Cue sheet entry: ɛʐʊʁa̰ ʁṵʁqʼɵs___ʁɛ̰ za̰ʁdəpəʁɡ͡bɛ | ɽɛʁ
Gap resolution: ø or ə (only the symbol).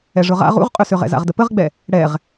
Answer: ø